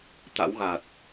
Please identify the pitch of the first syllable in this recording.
rising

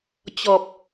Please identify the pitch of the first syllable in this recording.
low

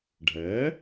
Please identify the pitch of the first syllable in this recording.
rising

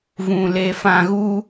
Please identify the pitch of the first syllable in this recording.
low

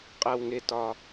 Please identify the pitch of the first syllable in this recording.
low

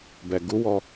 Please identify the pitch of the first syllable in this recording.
low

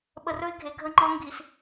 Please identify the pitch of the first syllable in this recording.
low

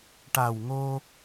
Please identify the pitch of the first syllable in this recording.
low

